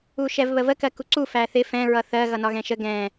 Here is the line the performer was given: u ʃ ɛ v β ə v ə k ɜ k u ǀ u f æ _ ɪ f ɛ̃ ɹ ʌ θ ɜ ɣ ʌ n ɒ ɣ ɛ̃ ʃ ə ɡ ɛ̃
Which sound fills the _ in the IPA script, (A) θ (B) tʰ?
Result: A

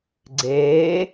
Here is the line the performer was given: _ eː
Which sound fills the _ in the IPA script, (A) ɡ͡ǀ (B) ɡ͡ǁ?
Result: A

